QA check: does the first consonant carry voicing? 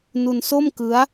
yes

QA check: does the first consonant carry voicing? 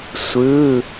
no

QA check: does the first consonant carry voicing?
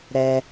yes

